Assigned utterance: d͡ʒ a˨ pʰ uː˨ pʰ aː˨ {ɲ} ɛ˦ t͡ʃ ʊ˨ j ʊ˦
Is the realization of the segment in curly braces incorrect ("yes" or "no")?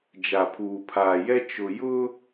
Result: yes